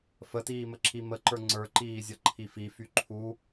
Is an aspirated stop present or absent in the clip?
present